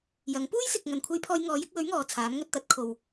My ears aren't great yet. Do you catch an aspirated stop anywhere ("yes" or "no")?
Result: yes